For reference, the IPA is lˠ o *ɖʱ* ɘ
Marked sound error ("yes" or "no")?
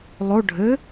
no